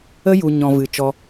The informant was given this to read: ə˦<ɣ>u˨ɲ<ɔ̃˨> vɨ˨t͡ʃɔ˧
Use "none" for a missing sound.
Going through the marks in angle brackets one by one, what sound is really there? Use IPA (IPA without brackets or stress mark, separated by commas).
j, ɔ̃˨